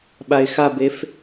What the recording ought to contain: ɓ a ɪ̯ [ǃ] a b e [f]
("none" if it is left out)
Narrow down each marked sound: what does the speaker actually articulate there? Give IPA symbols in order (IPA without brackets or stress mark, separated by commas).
x, f